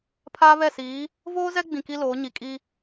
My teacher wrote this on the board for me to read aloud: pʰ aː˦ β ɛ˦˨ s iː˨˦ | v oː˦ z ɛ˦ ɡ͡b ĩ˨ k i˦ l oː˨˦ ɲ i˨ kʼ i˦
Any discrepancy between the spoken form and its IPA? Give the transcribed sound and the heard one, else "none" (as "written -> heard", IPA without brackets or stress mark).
none